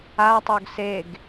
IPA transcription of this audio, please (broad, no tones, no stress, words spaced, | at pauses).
atˤoɡ seɡ